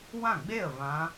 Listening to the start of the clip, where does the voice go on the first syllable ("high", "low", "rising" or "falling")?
falling